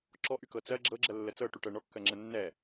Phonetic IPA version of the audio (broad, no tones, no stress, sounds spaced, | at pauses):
ǁ ɔ ʔ y k ɤ t͡s ɜ ɡ͡ǁ ɤ ɡ͡ǁ ɜ lː ə t͡s ɤ ʈ y ʈ ɜ ɳ ɔ kː ɜ ŋ͡ǁ ə nː ɛ